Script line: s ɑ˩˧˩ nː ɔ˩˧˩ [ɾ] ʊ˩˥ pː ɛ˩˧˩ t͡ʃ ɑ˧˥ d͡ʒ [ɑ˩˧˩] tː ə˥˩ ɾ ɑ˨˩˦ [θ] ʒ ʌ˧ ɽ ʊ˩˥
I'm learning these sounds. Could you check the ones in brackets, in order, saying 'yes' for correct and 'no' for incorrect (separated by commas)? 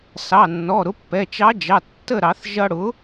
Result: yes, yes, yes